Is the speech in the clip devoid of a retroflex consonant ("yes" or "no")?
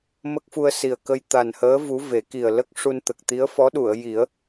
no